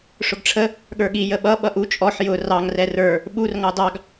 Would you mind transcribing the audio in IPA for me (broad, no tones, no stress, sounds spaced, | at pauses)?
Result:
ʂ ʊ ɡ ʈ͡ʂʰ ə | ɠ ə˞ ɠ i j ə ɓ ʌ ɓ ʌ ʔ u t͡ʃʼ ɔ ħ j ʊ r ɑ ŋ r ɛ r ə˞ | ɓ u r ŋ ɑ d ɑ ɡ